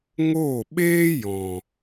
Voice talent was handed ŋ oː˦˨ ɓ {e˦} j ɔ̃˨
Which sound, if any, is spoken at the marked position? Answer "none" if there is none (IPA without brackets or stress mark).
eː˦